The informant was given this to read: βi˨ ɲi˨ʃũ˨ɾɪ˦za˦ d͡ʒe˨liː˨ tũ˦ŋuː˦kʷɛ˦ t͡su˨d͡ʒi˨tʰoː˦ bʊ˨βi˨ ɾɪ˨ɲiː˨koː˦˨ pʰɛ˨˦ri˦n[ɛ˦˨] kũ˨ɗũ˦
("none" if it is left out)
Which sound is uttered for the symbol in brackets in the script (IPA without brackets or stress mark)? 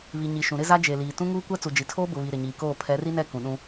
ɛ˦˨